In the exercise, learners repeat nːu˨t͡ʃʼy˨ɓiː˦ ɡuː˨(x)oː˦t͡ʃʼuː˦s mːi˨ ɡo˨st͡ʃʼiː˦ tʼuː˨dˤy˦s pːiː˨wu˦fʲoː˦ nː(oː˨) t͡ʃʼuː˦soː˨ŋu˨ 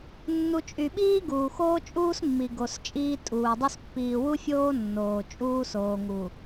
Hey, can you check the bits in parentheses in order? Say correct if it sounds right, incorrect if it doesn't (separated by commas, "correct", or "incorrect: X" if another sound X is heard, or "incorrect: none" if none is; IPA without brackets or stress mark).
correct, correct